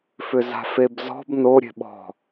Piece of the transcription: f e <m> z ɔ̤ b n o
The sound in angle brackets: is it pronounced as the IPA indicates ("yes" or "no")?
no